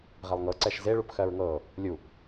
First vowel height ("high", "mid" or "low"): mid